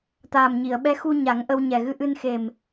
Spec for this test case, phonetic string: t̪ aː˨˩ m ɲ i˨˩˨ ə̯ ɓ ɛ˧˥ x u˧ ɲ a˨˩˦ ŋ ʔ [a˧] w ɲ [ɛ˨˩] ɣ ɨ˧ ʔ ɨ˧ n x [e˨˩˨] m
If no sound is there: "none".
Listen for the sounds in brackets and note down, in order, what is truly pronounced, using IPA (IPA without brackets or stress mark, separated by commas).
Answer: ə˧, ɛ˨˩, e˨˩